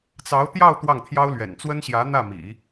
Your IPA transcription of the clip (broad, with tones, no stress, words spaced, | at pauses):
t͡sɑ˧˥ʊ̯t̪jɑ˥˧ʊ̯ t̪wɑ˥˩ŋt̪ʰjɑ˥ʊ̯lɥɛ̰˨˩n t͡swə˥nɕjä˧˥n̪ä˥˩ mḭ˨˩˦